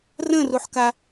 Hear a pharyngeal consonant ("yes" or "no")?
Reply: yes